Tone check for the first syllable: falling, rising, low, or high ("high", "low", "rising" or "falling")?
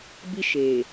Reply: high